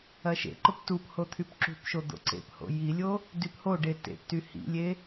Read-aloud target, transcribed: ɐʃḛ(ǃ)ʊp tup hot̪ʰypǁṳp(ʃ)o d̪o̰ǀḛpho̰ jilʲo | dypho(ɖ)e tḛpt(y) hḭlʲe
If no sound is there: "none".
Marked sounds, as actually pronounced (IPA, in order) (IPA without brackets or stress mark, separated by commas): ǃ, ʃ, ɖ, y